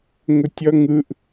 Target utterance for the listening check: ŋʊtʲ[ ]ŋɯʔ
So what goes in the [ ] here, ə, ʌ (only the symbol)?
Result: ʌ